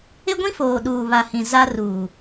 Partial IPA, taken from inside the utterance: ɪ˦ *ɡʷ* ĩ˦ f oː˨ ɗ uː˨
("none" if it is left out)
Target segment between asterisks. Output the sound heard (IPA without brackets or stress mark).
ɡʷ